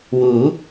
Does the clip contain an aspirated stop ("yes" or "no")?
no